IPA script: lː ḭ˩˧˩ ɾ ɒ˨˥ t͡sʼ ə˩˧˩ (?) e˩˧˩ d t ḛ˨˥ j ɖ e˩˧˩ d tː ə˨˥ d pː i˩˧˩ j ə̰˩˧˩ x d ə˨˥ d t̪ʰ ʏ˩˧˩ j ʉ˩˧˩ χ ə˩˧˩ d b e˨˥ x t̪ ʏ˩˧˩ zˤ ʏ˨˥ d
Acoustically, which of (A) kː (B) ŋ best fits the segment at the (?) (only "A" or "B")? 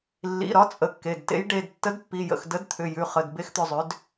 A